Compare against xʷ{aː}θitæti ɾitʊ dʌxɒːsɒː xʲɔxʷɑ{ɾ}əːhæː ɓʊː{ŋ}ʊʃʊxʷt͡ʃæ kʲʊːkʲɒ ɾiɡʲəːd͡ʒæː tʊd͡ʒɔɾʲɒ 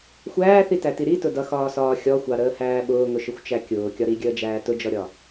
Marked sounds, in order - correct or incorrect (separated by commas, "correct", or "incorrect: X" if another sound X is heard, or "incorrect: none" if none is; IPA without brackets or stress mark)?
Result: incorrect: æː, correct, correct